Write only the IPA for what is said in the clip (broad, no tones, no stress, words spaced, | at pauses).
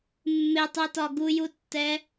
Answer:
mːɪtˤɛtɒ ɡujutːɛ